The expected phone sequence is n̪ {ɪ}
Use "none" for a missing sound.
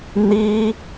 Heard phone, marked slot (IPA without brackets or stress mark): i